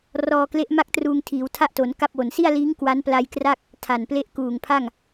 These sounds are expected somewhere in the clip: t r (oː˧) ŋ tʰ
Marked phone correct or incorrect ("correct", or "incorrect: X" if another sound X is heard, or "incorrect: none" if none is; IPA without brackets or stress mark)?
incorrect: uː˧